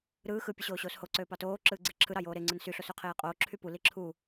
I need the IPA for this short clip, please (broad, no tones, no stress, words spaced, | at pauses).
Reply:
ɾɯː xɯ pʲɯɕoːɕoːsho ǀøːpɑtoː ǁɯːɡ͡ǀeǁʰɯ ɾɑjoːɾe ŋ͡ǀɯnsy ɬosøqʰeːqʼoː ǁʰypu liǁʰu